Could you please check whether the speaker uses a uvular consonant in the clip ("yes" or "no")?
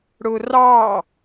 no